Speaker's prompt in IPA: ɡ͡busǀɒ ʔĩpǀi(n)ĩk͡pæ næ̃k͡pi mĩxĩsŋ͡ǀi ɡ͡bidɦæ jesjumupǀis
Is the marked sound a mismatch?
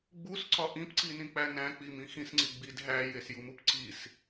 no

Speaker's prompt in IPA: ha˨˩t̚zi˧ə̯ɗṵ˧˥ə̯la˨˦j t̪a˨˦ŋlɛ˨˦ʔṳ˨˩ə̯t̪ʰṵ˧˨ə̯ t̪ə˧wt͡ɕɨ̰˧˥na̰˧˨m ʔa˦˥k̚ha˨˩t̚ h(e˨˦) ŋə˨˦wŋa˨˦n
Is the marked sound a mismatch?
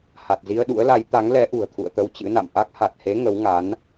no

